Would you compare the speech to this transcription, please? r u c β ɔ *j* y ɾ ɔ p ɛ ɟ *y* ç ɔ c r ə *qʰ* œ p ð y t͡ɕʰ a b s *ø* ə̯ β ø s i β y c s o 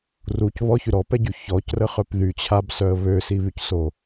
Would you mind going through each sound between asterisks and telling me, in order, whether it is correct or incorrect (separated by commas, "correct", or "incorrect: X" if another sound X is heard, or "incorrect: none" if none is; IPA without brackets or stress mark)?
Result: incorrect: ç, correct, incorrect: χ, incorrect: œ